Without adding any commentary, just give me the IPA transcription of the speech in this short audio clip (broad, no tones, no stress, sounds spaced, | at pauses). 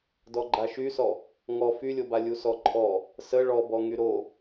d ɔ ɡ͡ǃ a ʃ y s ɔ | ŋ ɔ f y lʲ o b a lʲ u s ɔ ǃʼ ɔ | s ə ɭ ɔ b ɔ ŋ y ɾ o